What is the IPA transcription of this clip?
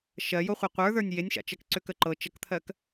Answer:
ʃ ɜ j o χʷ a qʷ ə˞ ð ə˞ nʲ j e nʲ ʃ a̰ t͡ʃ ɜ k ǀ ø k ə ǃ ɤ t͡ʃ ə k t̪ʰ ɜ k

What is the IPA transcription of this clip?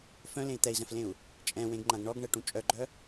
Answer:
f œ̃ l ẽ i̯ t̪ ɛ i̯ z ɛ̃ f l ẽ u̯ | t͡ʃʼ ɛ̃ w ẽ ɡ ŋ͡ǃ ã ɡ ɳ ɔ ɡ ɳ ɛ ʈ ũ t͡ʃʼ œ ɡ͡ǃ œ

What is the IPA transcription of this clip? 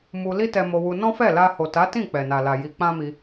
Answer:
m u˧ l i˦ t ɛ˧ m o˧ w u˧ n ɔ̃˦ f ɛ˦˨ l a˧ h o˨ t a˨˦ t ĩ˦˨ k͡p ɛ˨ n a˨ l a˨ j i˧ k͡p ã˦ m i˧

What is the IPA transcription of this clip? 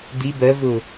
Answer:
d̪ i b ɜ v ʊ

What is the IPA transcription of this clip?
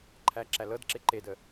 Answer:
ǃʰ æ ǁ æ l ɤ d ǁ e ǃ e d ə

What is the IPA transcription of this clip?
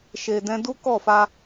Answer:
ʃ e˨ d ɛ̃˧ d u˦ k ɔ˦˨ f a˧

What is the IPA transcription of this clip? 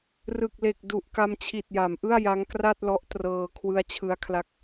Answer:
r ɯ˨˩ k̚ l e˨˩ k̚ d u˨˩ ʔ k a˧ m t͡ɕʰ i˨˩ t̚ j a˩˦ m ʔ ɯ˥˩ a̯ j a˦˥ ŋ k r a˥˩ t̚ l ɔ˦˥ ʔ t r ɤː˧ kʰ w ɯ˦˥ a̯ t͡ɕʰ ɯ˦˥ a̯ kʰ l a˦˥ k̚

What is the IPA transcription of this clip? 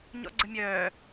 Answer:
ɲ ɔ̰ ɡ͡ǀ ə mʲ œː

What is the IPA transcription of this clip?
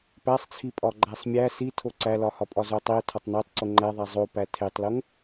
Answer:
p æ sˤ t͡sʰ i pʼ ɒ ɡ͡ǃ æ sˤ mʲ æ s i tʰ o ǀ æ l ɒ h ɒ pʼ ɒ z o tˤ i ʊ̯ tʰ ɒ tˤ n o tˤ ǀ o ŋ͡ǃ æ ðˤ æ zˤ o p æ tʰ e tˤ l o ŋ

